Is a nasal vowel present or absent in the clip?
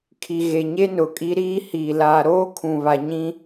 present